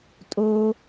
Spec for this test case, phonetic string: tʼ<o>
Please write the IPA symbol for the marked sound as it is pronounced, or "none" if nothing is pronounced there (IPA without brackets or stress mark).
o